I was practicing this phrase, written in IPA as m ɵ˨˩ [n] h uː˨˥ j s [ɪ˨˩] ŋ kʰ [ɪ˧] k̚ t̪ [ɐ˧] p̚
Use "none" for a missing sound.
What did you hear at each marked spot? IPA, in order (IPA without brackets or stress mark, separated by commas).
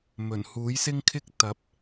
n, ɪ˥, ɪ˥, ɐ˨˥